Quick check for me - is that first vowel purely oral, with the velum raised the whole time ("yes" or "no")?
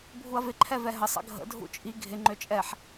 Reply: yes